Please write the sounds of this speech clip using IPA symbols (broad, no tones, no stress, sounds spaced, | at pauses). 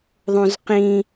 ðˤ ũ z q ĩ